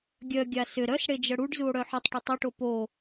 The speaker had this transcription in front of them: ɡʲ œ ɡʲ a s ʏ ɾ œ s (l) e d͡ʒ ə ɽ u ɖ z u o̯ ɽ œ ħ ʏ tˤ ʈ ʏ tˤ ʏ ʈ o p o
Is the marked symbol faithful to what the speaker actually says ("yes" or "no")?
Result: no